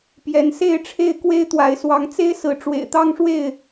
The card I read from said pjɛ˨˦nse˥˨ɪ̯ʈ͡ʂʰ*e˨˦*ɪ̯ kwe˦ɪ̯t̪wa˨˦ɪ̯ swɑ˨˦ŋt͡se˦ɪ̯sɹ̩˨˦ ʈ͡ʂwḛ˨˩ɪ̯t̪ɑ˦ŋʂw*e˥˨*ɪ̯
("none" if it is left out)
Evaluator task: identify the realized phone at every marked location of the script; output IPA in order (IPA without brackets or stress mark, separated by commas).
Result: e˥˨, e˥˨